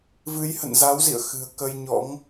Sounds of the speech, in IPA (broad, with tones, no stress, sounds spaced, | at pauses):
v ɨ˨˦ j h ə̰˧˨ n z a˨˦ w z ḭ˧˨ ə̯ x ɨ̤˨˩ ə̯ k ə˧ j ɲ ɔ̰˧˥ ŋ